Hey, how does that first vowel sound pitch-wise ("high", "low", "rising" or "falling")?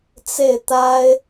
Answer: falling